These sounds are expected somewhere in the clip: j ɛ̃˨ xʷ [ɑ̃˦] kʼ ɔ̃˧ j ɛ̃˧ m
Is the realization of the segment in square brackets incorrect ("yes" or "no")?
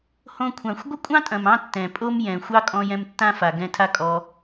yes